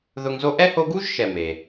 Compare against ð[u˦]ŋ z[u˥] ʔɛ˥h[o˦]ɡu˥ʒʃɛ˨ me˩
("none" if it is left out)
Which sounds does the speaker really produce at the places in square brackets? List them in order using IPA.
ʊ˦, o˥, o˦

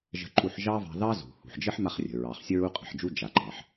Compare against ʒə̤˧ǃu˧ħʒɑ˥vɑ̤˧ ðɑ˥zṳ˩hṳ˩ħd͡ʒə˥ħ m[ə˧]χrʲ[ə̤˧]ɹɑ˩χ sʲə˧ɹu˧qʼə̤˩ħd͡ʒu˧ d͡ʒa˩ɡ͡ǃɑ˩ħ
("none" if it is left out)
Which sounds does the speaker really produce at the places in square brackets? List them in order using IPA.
a˧, ə̤˩

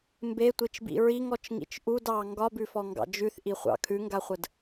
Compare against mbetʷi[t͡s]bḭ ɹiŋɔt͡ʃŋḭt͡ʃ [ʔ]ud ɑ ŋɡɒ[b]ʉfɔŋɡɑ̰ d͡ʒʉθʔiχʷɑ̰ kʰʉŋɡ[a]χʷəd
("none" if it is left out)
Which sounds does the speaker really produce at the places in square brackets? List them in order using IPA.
t͡ʃ, ʔ, b, a

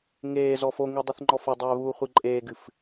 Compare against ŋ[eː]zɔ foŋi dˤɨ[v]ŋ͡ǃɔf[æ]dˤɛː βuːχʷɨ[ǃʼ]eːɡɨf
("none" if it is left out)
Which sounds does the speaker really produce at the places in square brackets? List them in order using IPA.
eː, θ, ɐ, ǃʼ

